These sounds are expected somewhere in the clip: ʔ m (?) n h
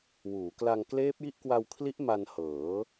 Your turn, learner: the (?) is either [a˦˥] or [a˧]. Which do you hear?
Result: a˧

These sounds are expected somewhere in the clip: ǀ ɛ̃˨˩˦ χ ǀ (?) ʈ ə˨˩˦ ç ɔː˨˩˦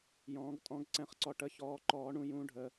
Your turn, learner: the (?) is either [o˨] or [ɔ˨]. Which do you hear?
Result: ɔ˨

